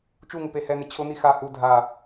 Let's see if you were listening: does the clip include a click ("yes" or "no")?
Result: no